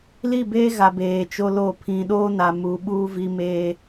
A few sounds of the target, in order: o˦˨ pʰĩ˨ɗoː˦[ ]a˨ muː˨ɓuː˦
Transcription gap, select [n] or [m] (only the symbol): n